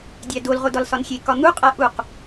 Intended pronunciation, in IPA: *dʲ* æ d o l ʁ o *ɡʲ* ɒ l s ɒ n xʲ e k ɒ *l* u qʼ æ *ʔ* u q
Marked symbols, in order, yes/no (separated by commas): yes, no, no, yes